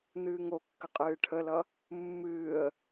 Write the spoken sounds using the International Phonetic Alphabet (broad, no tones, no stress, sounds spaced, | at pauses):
n̪ ɨː ŋ o kː ə qʼ ɨː ʈʰ ə l ʌ | mː ɨː ə̯